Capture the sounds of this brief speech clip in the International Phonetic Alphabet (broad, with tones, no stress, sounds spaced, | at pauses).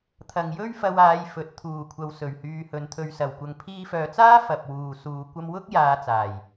t̪ʰ ɐ˨ ŋ j ɵ˥ ɥ f ɐ˧ w aː˨˧ j f ɵ˨ t̚ t̪ʰ uː˨˩ kʷʰ ɐ˨ w s ɵ˨˩ ɥ h yː˨ h ɵ˨˧ n t̪ʰ ɵ˧ ɥ s ɐ˨ w kʷ ɐ˧ ŋ pʰ iː˧ f œː˨ t͡s aː˥ f ɐ˨ p̚ w uː˨ s uː˨˧ kʷ ɐ˧ m w ʊ˥ k̚ j aː˧ t͡s aː˨˩ j